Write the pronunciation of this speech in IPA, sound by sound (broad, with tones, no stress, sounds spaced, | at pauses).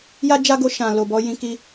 j a˦ d͡ʒ a˦ ɡ o˧ ʃ ã˨ l o˨ b ɔ˨˦ j ĩ˦ k i˦